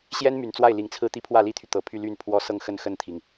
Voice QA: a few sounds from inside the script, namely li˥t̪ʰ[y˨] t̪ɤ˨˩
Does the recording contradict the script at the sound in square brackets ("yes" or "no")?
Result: no